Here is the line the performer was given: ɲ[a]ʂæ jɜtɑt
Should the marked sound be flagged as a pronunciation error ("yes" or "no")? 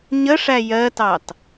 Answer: yes